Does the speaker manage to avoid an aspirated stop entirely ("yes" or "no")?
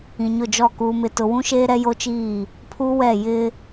no